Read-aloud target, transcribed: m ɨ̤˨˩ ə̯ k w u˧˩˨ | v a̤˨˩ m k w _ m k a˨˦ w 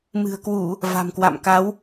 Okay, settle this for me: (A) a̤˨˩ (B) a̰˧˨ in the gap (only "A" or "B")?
B